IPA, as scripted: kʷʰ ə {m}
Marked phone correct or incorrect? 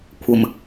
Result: correct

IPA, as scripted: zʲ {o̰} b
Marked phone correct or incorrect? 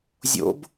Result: correct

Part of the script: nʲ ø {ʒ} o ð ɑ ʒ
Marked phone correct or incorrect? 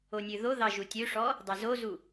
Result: incorrect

